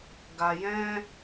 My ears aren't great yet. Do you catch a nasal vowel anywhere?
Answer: yes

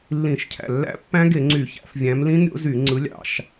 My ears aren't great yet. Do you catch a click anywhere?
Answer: yes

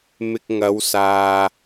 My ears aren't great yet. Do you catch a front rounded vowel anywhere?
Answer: no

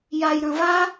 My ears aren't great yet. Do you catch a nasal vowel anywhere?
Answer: yes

